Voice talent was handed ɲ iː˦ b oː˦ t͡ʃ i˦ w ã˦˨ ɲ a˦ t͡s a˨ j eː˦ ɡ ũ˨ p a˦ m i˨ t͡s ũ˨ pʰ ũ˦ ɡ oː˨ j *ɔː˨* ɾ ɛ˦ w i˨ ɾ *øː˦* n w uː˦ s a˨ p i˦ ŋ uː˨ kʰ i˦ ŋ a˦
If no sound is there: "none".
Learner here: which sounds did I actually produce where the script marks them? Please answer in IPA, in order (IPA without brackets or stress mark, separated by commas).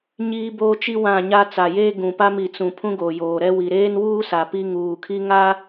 oː˨, eː˦